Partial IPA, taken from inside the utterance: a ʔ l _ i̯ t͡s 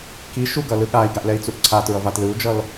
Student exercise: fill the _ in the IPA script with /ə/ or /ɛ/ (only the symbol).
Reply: ɛ